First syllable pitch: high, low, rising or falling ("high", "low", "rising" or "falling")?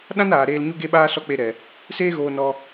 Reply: high